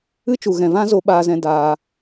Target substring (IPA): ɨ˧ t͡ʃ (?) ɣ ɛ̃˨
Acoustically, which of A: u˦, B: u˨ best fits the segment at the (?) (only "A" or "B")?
B